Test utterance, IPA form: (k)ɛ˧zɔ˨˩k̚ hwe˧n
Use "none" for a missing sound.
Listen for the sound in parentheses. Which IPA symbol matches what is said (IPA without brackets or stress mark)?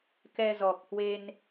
k